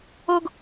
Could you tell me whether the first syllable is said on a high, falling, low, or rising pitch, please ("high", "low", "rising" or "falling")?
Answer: high